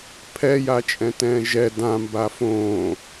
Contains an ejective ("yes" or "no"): yes